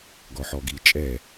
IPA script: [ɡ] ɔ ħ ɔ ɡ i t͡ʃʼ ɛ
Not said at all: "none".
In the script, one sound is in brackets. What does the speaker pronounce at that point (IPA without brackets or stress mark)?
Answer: ɡ